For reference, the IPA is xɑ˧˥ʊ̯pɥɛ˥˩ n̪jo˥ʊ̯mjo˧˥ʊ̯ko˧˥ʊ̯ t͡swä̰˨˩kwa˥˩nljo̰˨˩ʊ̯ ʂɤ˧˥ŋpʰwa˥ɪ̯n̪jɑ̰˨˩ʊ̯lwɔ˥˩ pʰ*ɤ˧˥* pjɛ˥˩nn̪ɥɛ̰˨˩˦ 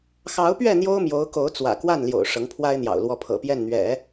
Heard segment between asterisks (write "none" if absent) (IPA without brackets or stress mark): ɤ̰˨˩